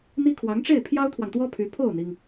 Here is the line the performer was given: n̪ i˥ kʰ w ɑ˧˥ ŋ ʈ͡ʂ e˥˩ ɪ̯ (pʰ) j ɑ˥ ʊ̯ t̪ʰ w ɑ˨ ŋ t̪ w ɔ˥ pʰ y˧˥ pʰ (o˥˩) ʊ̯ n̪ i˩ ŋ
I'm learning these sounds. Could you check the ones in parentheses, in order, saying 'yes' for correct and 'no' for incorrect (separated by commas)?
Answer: yes, yes